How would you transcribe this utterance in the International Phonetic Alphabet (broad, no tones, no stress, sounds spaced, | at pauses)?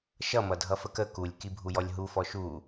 ʃ ʌ m ʌ dʱ ʌ f ə k ə k u lʲ k i bʱ u j ɔ lʲ ɦ u f ɔ ʃ u